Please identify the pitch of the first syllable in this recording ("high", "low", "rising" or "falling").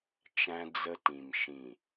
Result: high